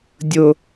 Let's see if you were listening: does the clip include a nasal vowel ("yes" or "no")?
no